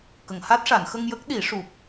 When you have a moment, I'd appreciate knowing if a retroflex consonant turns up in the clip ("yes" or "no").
yes